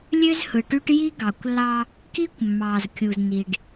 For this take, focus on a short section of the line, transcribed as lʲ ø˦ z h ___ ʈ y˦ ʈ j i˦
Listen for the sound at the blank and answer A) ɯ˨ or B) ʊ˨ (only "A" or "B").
A